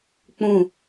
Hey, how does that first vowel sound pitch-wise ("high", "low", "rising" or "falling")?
falling